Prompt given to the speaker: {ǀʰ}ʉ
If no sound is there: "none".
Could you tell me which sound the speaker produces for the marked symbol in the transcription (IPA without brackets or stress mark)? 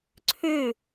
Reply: ǀʰ